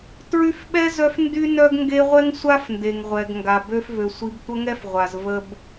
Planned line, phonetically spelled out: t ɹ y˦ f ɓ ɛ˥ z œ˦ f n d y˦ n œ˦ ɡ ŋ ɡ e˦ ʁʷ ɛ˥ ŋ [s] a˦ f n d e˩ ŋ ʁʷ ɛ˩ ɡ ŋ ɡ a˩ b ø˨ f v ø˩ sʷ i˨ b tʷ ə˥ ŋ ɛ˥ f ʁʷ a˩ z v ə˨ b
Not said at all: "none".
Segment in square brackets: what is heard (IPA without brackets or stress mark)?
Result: sʷ